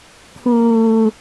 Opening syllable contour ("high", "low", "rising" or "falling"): low